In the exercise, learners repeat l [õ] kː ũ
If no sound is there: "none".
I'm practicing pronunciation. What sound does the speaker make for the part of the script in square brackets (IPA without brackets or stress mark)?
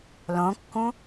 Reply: õ